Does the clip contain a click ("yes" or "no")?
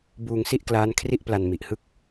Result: no